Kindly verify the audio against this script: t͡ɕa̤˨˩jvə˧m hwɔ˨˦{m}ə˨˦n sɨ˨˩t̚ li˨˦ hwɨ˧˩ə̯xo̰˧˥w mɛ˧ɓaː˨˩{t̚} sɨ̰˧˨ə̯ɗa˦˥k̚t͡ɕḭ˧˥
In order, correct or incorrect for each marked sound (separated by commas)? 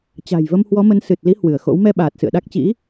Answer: correct, correct